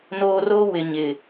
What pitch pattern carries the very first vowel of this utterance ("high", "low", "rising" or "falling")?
high